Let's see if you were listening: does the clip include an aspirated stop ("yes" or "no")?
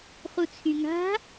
yes